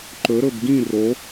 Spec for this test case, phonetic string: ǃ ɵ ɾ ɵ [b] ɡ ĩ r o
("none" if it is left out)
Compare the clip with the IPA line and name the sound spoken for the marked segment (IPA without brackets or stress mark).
b